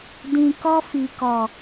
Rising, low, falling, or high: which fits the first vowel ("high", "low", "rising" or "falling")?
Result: low